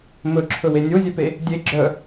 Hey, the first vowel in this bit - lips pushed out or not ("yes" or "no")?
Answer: yes